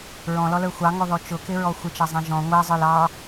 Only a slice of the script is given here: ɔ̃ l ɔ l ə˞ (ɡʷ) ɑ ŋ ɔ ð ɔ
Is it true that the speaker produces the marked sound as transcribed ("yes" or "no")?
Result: no